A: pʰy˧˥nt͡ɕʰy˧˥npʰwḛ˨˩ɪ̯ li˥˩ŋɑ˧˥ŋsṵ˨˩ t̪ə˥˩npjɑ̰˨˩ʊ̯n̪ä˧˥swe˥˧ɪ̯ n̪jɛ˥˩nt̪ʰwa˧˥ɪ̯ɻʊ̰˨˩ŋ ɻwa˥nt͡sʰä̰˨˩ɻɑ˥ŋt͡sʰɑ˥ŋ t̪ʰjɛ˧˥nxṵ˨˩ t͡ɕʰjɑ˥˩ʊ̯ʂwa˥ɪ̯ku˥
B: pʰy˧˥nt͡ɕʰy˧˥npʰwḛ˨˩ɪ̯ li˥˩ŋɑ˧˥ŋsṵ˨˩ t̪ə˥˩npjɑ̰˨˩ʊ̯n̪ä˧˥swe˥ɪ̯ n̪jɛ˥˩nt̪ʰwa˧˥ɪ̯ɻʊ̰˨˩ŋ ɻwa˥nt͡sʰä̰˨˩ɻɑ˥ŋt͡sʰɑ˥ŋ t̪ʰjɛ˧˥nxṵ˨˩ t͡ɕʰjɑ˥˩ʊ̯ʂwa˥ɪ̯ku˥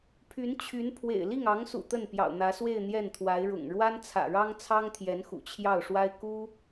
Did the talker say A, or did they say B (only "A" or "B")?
A